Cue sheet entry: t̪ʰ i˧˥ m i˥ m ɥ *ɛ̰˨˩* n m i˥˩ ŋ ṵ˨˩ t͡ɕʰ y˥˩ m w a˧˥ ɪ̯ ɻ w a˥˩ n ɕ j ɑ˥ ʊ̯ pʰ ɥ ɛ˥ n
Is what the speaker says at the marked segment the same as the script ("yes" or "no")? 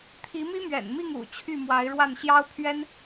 yes